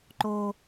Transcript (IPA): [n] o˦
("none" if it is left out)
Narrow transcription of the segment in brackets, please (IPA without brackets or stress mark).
ǃ